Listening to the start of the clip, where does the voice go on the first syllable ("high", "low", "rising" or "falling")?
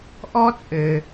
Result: high